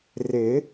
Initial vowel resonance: oral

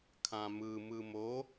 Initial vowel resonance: nasal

